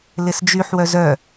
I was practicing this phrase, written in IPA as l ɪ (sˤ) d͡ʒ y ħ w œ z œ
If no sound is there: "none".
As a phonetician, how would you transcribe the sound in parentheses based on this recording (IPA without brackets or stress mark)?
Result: s